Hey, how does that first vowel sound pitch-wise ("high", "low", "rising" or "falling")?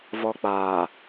high